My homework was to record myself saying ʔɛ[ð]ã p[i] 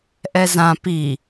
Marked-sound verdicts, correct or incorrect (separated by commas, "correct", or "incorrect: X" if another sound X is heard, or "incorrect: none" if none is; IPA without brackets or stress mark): incorrect: z, correct